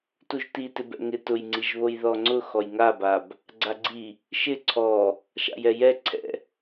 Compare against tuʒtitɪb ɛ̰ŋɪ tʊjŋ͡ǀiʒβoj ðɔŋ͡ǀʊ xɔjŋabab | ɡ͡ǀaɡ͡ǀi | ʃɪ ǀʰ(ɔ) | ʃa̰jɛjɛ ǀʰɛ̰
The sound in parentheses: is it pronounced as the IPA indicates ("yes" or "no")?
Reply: yes